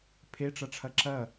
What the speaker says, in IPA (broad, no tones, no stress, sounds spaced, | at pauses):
pʰ e ʈ͡ʂ ɐ ʈ͡ʂʰ ɐ ǁ ɐ